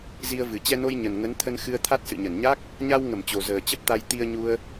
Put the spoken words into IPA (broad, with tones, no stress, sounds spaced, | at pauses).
z i˧ ə̯ v ɨ˨˩ t͡ɕ ɛ˧ n o˧ j ɲ ə˨˩ n ŋ ə˨˦ n t̪ʰ ə˧ n x ɨ˧ ə̯ t̪ʰ a˦˥ t̚ s ɨ̰˧˨ ɲ ə˧˩ n ɲ a˦˥ k̚ | ɲ a˧ w ŋ ə˧˩ m t͡ɕ o˨˩ z əː˨˩ t͡ɕ ə˦˥ p̚ t̪ a˧ j t̪ i˧ ə̯ ɲ u˧ ə̯